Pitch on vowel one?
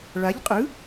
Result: rising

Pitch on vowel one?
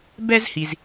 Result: high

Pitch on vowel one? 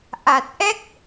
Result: low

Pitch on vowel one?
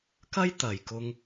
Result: high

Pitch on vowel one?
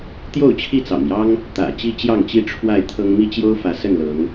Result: falling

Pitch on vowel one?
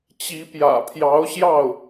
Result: rising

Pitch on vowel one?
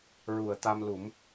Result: low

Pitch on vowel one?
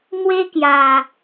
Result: high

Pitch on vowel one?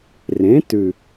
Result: rising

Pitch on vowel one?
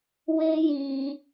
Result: high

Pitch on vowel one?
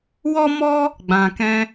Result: high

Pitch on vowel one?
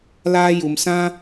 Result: high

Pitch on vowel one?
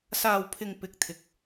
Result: low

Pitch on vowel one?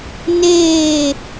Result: falling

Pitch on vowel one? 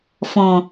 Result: low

